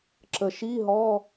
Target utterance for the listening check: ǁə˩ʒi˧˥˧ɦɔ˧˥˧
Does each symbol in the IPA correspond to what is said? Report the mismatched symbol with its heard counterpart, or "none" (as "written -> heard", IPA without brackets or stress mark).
ʒ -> ʃ